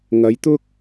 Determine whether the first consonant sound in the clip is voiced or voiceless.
voiced